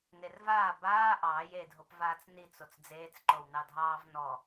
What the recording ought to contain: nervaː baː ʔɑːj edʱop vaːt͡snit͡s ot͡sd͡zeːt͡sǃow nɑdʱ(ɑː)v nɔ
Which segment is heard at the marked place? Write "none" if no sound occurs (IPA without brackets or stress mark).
ɑː